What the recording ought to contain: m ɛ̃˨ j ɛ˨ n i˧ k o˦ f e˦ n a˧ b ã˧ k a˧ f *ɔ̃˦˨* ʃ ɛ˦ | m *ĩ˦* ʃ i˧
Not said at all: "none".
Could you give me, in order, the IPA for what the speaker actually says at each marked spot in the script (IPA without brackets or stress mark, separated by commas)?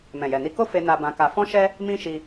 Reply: ɔ̃˦, ĩ˦